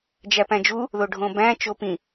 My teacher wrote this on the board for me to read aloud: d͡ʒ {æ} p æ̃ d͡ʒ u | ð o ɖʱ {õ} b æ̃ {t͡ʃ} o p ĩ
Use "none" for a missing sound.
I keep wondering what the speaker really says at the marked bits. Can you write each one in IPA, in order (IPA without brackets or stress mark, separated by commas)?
æ, õ, t͡ʃ